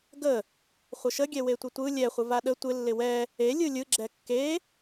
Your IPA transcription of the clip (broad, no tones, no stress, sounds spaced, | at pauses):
ɡ ə | χʷ ə ʃ ə ɡʲ ɛ w e tʷ ɪ tʷ ɯ lʲ ɛ χʷ ə v a ɗ ə tʷ ɪ lː ɪ w ɛ | e lʲ ɯ lʲ ɯ ɡ͡ǁ ɛ kː e